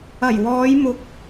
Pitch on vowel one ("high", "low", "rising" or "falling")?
low